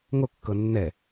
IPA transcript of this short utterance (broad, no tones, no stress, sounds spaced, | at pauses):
ŋ o kː ɤ nː ɛ